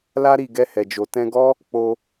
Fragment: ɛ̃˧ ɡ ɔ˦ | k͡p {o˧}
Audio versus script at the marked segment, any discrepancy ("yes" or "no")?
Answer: no